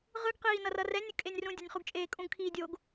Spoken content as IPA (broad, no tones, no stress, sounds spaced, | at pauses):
ʁ ɯ ɡ q iː n ʌ r ʌ r ɛ nʲ ɯ kʼ e nʲ r ũ dʲ ʌ nʲ χ u ɡ t͡ʃʼ eː kʼ ũ ɡ kʰ iː dʲ o ɡ